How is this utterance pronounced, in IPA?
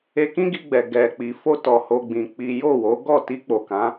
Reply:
e˧kĩ˦ɡi˧ɡ͡bɛ˨ ɡɛ˨k͡pi˨ fo˧ tɔ˧ho˦ɡ͡bĩ˧k͡pi˦ jo˦˨wo˨˦ ɡɔ˦˨ti˧k͡po˨ kã˨˦

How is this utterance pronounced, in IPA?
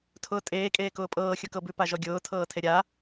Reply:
tʰʊːtʼeː kʼeːkʊːpʼɤː xʲʊkɤbʉ paʒɔɡʲʊː tʰɤːtʰeɾʲa

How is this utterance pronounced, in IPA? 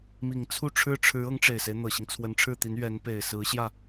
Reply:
mi˨˩ŋt͡sʰu˥˩ʈ͡ʂʰɻ̩˥ ʈ͡ʂʰɻ̩˧˥ ɤ˧˥ŋʈ͡ʂe˨˩ɪ̯se˦ɪ̯ n̪ɤ˨˩ɕi˦ŋ t͡sʰwə˧˥nʈ͡ʂʰɻ̩˥˩t̪i˧˥n ɥɛ˧˥n pe˨˩ɪ̯sɹ̩˧˥ɕjä˥˩

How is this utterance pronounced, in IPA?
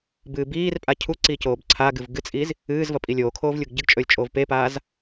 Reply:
bɨːbiːrpʼa cʰuǀi coːbǀʰaɡɨv ɡɨt͡sʼiːz | ɨːzvɐ pʼilʲoːkʰoːv lʲuɡɟɨɡt͡ʃʼɵːlʲ t͡ʃʼoːvpepaːz

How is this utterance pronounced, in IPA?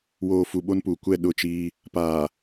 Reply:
woː˨fu˨ ɓo˦npuː˨ kʷɛ˦˨ɗʊ˦˨t͡ʃiː˦ | paː˨

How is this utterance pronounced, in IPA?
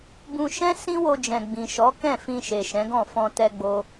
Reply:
bũ˧ʃɛ̃˦ sĩ˦wo˧d͡ʒɛ̃˨ ɡ͡bĩ˨ʃɔ˨˦kɛ̃˦˨ fĩ˧ ʃe˨ʃɛ̃˨˦ɡɔ̃˦˨ fɔ̃˧tɛ˧ɡ͡bo˧

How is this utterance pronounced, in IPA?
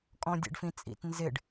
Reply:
kʼɔ̃dʲɛ̰ɖfĩt͡sʼḭt nzɪɖ

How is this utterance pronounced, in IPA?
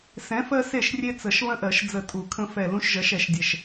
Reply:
sɛ̃˨˥fɜ˦ se˥˩ʃrʲe˦t͡sə˨˩˦ʃ βə̃˦ʔɜ˨˩˦ʃ d͡zə˧˩tʼu˨˩˦ kʰə̃˦fɛ˧˩lũ˦ʃ ʒɜ˨˥ʃɛ˨˩˦ʃdʲɛ˧˩ʃ

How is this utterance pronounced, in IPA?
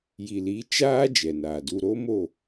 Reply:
ji˨li˨˦ t͡ʃaː˦ d͡ʒɛ˨naː˨du˧ ɾo˦mo˦˨

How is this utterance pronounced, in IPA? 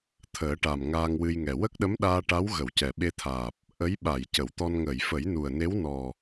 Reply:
t̪ʰəː˨˩˦ʈa˨˩m ŋaː˧ŋwɨ˧jŋɛ˨˩ wə˦˥k̚ɗə˧˥mɗaː˧ ʈa˧˥wɣə˨˩˨w cɛ˨˩ɓe˧t̪ʰaː˨˩p̚ | ʔə˧˥jɓa˨˩˨j cə˨˩˨wt̪ɔ˧n ŋəː˨˩˨jfə˨˩˦jnu˨˩ə̯ne˧˥w nɔ˨˩

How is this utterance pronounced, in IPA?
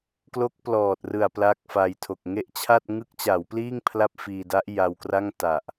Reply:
klo˦˥k̚plɔː˨˩t̚rɯ˨˩a̯ pla˦˥k̚fa˧jtʰo˨˩k̚ ŋe˦˥ʔt͡ɕʰa˥˩t̚ ŋɯ˦˥k̚t͡ɕa˩˦wpliː˥˩ŋ pʰla˥˩p̚fiː˧da˦˥ʔ ja˧wkra˥˩ŋ ta˨˩ʔ

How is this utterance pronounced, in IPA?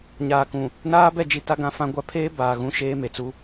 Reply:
ɲaː˨kũ˨ | naː˦bɛ˦˨d͡ʒi˨ ta˦ɡã˦fã˦ɡʷa˦ pʰeː˦ baː˨ ɣũ˦ ʃeː˦me˨t͡su˦

